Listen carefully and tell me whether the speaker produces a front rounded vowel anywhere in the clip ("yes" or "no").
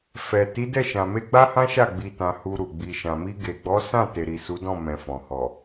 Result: no